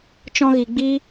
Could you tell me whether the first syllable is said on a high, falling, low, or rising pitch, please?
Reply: high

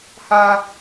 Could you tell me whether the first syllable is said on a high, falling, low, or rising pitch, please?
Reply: high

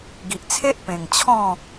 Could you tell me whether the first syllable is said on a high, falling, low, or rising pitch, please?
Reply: low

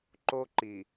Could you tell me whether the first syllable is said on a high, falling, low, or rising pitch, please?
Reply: high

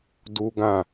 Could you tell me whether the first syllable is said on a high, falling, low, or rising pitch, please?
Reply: high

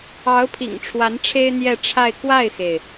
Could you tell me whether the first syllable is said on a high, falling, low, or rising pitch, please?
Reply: rising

